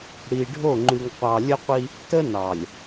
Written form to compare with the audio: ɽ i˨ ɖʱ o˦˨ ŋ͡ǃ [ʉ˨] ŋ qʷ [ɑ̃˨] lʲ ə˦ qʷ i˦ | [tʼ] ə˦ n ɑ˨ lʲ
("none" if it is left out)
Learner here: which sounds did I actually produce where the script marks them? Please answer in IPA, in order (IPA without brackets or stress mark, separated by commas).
ʉ˨, ɑ˨, t